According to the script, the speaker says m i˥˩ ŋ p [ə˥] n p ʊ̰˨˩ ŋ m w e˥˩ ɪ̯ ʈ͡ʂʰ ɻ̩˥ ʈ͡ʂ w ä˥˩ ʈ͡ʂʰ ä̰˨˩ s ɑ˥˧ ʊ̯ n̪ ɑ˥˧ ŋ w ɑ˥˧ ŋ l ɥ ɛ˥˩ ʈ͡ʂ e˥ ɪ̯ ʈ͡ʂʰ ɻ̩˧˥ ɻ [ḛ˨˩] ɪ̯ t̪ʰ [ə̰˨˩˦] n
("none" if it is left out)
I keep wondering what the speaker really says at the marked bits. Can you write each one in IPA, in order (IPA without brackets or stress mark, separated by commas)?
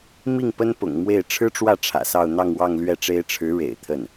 ə˥, ḛ˨˩, ə˥˩